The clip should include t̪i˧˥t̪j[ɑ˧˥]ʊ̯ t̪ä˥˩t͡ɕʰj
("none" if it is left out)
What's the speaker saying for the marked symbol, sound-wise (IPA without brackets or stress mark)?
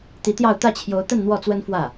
ɑ˥˧